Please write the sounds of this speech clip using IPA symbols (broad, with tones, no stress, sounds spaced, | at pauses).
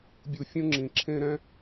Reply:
bʲ u˨ fʲ ũ˦ ŋ͡ǁ ĩ˨ ǁʰ ẽ˦ ɾ ɛ̃˦